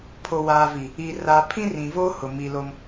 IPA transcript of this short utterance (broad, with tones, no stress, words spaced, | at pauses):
pʰo˨waː˨vi˨ | i˨ra˨ pʰĩ˦rĩ˨voː˦ hʊ˨ mi˨lo˦m